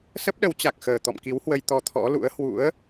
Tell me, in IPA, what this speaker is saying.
s ə˦˥ p̚ ɗ ə˨˦ w t͡ɕ a˨˩ k̚ x əː˨˩ t̪ ɔ̰˧˨ m k i˨˦ w h w ə˧ j t̪ ɔ˧ t̪ʰ ɔ̰˧˥ l ṵ˧˥ ə̯ h w ṵ˧˥ ə̯

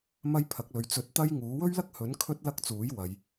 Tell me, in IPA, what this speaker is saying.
m ɐ˥ j pʰ ɐ˨˥ k̚ l ɵ˨ ɥ t͡s ɵ˨˥ t̚ t̪ ɐ˥ j ŋ uː˨˥ w ɵ˥ ɥ l ɐ˥ k̚ h ɵ˨˥ n kʰ ɵ˥ t̚ l ɐ˥ k̚ t͡s uː˨˥ j w ɐ˨˧ j

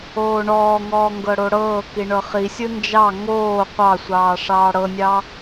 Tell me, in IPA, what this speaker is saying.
oː ɳ ɔː ŋ ɔː ŋ ɡ ɤ ɽ o ɽ ɤː k i ɳ ɤ χ i sʲ ɯ n d͡ʒ ɑ ŋ oː qʷ ɑ sʷ ɑː ʂ ɑː ɽ ɤ nʲ ɑ

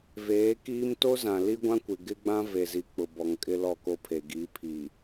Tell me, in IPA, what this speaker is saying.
v eː˨˦ k iː˦ m t o˦ z ã˨ l i˦ ɡʷ ã˦ kʷ ɪ˨ ɡ ɪ˦ ɡ͡b ã˦ v e˨ z i˨ k͡p ʊ˨ b ɔ˨ ŋ kʼ ɪ˦ l ɔ˦˨ k o˦ pʰ e˨ ɡ i˨˦ pʰ i˨

